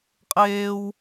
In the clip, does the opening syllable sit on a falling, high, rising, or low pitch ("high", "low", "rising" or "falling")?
high